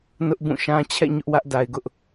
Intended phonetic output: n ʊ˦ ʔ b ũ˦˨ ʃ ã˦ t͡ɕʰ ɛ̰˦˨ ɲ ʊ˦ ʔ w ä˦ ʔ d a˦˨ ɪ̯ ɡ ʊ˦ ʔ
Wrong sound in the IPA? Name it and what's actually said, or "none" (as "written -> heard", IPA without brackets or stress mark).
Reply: a˦˨ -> a˨